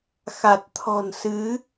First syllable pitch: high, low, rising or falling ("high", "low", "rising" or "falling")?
low